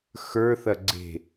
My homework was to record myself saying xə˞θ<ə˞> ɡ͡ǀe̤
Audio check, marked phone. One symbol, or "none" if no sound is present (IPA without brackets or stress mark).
ɐ